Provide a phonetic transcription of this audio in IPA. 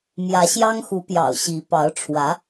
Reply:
m j ä˧˥ ɕ j ɑ˥ ŋ x u˧˥ p j ɑ̰˨˩ ʊ̯ ɕ i˧˥ p ɑ˧˥ ʊ̯ ʈ͡ʂʰ w ä˧˥

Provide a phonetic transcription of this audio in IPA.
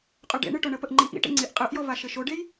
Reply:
qʼ ʉ ɖ ḛ ɳ ɨ ʈ o ɳ ə p ə ʔ ŋ͡ǃ i ʔ ḭ ʈ ḛ ŋ͡ǀ i ʔ qʼ ɯ ʔ j ɔ v a ʃ ɘ ʃ o ɖ e j

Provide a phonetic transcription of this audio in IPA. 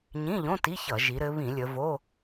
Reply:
ɲ ĩ˧˥˧ ʎ õ˧˥˧ t i˧˥˧ ç ʌ˧˩˧ ʒ i˩˧ ɾ ɘ˩˧ β ĩ˧˩˧ lʲ ə˩˧ v o˧˥˧

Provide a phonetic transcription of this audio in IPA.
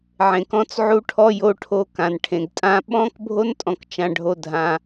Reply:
ʕ ẽ˨ k ɔ̃˦ t͡s ʕ u˦ ʈʰ ɔ˦ j o˦ ʈʰ o˦ k ã˨ n ʈʰ ẽ˨ ɡ tʼ ã˦ ɓ ɔ̃˦ k bʱ o˦ n tʼ ɔ̃˨ k t͡ʃ ã˦ ɖʱ o˦ dʱ ã˦

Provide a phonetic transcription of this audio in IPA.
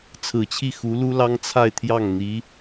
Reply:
t͡sʰ ɹ̩˨˩ t͡ɕʰ i˥˩ x u˧˥ l u˥ l ɑ˥ ŋ t͡sʰ a˥˧ ɪ̯ t̪ʰ j ɑ˥˩ ŋ n̪ i˧˥

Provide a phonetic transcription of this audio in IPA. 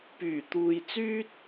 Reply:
p yː˨˩ t̪ uː˨ j t͡s yː˥ t̚

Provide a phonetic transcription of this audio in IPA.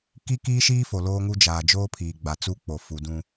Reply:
k i˦ k iː˦ ʃ iː˦ f o˨ l oː˦ ŋ u˦ d͡ʒ aː˨ d͡ʒ oː˦ pʰ iː˨ ɡ͡b a˨ t͡s u˦ k͡p o˨ f u˨ d ũ˦

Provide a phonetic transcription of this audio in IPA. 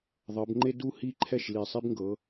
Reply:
ðˤ ɤ˩˧ b ŋ͡ǃ e˦ d u˥˩ h i˥˩ ǃʰ ɛ˥˩ ʃ l i˨˩ sˤ i˦ b ŋ ɡ ɤ˩˧

